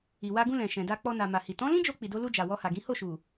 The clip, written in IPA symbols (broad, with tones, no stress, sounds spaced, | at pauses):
i˨ w a˧ ɡ ũ˧ l ɛ̃˨ ʃ ɛ̃˨ d a˧ k͡p ɔ˧ n a˨ m a˨ h i˨ t ɔ̃˨˦ l ĩ˦ d͡ʒ o˧ k͡p i˨ d o˧ l u˧ d͡ʒ a˨ w ɔ˧ h a˨ ɡ ĩ˨˦ h o˦˨ ʃ u˨